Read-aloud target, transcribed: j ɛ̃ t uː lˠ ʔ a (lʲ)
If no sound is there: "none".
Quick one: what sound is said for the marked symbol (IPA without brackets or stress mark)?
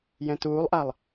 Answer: lˠ